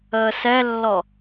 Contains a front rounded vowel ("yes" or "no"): no